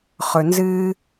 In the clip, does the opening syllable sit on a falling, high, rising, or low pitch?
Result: low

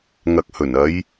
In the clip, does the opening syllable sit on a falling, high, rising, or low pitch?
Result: low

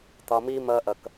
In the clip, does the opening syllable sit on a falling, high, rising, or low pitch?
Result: low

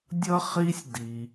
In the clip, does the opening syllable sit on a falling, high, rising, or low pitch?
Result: high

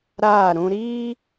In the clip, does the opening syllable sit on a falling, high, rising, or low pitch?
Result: falling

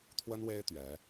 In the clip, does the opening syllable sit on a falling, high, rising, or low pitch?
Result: high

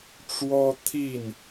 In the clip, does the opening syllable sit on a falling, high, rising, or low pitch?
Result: high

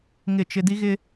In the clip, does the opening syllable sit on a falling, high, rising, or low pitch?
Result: falling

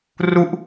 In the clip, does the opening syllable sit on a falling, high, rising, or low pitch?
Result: falling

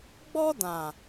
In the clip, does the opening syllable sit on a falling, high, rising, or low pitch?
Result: high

